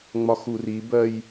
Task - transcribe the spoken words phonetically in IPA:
ŋ͡m ɒ x u r i b ɜ j

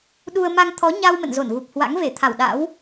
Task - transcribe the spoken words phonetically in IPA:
ɗ u˧ ə̯ m a˧ ŋ t̪ʰ ɔ˨˦ ɲ a˧ w m ə̰˧˨ n z o˧˩ n ɣ u˨˩ p̚ h w a̰˧˥ ŋ v e˧˩ t̪ʰ a˧˩ w ɗ a̰˧˥ w

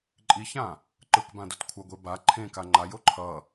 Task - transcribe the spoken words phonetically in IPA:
ǃʼ i ç ã | ǃ ɯ k b ã d o t kʷʰ ʌ ɡʷ e b a ǃʰ ẽ k a ŋ͡ǃ a j o ǃʰ ʌ

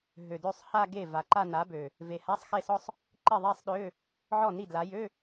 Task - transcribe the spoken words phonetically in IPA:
ɦ ø˨˩ d ø˥˩ sˤ h a˥˧ ɡ e˥˩ v a˨˩ ǃ a˥˧ n a˨˥ b ø˨˩ | v e˨˩ h a˧˥˧ sˤ x e˥˩ s ɔ˥˧ sˤ | ǃ i˥˩ ðˤ e˥˧ sˤ ɗ ø˧˥˧ | ʕ ɔ˥˩ n i˥˩ d l a˨˥ j ø˧˥˧

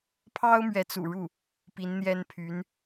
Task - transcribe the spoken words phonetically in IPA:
pʰ ɑ˥ ʊ̯ m ɥ ɛ˧˥ t͡s ṵ˨˩ ɻ u˥˩ | p i˧˥ n n̪ j ɛ˥ n pʰ y˧˥ n

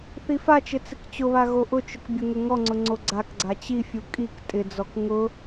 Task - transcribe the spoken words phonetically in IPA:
θ i f a t͡ʃ ɪ t͡s ɪ k t͡ɕ ʊ β a ɣ o ʔ ʊ t͡ʃ ʊ k bʲ ʊ ŋ ʊ ŋ ɔ ŋ͡ǀ ʊ ŋ͡ǀ o ɡ͡ǀ a k ɡ͡ǀ a t͡ɕ i fʲ u kʼ i k tʼ ɪ d͡z ɔ k ŋ ʊ

